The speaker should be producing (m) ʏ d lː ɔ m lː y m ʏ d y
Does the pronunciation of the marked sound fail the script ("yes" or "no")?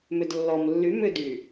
no